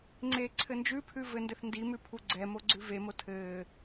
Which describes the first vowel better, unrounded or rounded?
unrounded